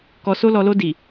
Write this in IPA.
kɔ˨so˧lɔ˨lo˧ di˨

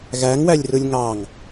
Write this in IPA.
ɣæŋwælʲrɯlʲ ŋɑŋ

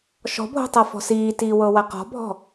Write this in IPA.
ʃɔ̤bʱo̤tˤɤfɔ̤ siːtiːwɤwa qɔ̤bʱɔ̤

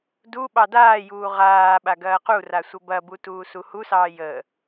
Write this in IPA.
du ɓɑdaːjuː ʁaːɓa ɡɐːqura sʷɐbɐbu tuːsuhusɑː jə

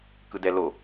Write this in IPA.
kɯdɛlo

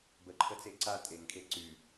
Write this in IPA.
bəǃʰət͡se ǀa tʼeŋkʰe ǀy

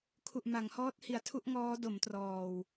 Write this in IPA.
kʰu˨˩ʔma˩˦ŋhɔː˦˥t̚ hi˩˦a̯tʰu˥˩ʔŋɔː˦˥ do˩˦mtrɔː˨˩w

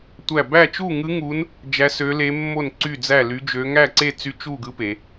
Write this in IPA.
tʷæ˥˧ bæ˥˧t͡ʃu˥˧ŋɯ˦˥ŋu˦˥n | d͡ʒæ˦˥sø˦˥le˦˥mːo˥˧n ǀy˥˧d͡zæ˥˧ ly˦˥d͡ʒø˦˥ ŋæ˥˧ǀe˥˧t͡sy˦˥ t͡ʃu˥˧ɡɯ˦˥ pe˦˥

